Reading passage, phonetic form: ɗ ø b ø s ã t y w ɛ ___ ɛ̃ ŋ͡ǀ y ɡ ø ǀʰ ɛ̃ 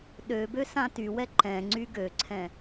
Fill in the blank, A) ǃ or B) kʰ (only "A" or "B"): A